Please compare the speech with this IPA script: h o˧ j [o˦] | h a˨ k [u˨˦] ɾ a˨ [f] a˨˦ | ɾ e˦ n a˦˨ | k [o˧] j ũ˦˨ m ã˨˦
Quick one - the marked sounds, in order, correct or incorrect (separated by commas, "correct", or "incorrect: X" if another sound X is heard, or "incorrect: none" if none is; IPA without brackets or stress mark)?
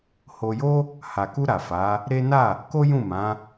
correct, incorrect: u˧, correct, incorrect: o˦